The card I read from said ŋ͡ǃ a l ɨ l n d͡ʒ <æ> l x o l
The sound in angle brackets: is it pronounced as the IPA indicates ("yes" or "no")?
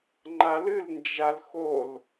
no